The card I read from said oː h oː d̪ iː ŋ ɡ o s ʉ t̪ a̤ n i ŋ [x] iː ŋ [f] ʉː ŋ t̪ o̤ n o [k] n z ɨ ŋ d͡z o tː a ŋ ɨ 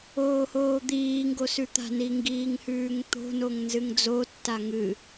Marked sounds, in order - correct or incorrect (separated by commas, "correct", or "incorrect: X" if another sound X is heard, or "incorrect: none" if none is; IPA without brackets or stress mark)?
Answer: incorrect: ɡ, incorrect: h, incorrect: ŋ